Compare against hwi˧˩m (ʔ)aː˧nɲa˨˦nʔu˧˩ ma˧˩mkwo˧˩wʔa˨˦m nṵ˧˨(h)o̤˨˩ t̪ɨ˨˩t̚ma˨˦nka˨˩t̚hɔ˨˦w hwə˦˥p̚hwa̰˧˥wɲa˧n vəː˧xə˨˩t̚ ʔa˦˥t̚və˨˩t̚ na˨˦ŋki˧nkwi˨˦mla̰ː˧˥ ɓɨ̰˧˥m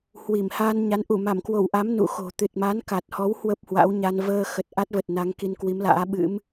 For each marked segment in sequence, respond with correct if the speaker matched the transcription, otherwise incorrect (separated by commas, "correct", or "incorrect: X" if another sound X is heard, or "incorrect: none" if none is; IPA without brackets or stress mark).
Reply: incorrect: h, incorrect: x